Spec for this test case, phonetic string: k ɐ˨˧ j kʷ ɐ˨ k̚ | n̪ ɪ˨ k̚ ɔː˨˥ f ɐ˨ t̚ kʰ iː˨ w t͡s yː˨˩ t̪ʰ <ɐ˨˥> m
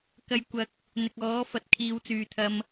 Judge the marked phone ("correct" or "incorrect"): incorrect